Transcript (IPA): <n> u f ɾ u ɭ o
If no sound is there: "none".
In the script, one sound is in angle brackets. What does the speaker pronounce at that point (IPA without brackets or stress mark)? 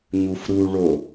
ɲ